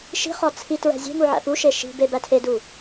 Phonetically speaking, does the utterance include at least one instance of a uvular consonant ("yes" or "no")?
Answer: yes